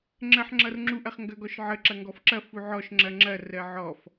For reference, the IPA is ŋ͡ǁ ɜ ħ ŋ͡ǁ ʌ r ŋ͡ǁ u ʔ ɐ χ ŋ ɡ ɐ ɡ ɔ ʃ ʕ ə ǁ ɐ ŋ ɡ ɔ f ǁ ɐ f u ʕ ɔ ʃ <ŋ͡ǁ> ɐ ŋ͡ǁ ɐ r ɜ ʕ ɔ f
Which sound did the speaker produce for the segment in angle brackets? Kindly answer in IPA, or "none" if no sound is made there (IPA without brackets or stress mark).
ŋ͡ǁ